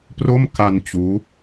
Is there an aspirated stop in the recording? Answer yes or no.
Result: no